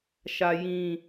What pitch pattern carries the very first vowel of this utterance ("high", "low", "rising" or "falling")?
low